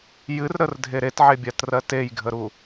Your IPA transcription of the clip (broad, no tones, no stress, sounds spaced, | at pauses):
j ɨ r ɾ ə r dʱ e ɾ e t ʕ e bʲ a t r ɜ t e j ɡʱ ə ɾ u